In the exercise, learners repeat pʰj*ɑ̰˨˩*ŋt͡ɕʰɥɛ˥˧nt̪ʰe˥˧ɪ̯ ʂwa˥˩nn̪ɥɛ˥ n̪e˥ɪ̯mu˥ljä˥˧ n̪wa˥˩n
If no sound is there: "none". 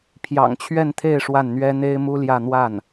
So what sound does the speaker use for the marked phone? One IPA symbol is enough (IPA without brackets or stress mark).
ɑ̰˨˩